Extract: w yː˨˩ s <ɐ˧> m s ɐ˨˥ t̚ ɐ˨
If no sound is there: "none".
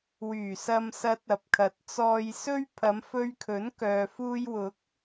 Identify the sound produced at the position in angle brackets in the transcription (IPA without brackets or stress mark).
ɐ˨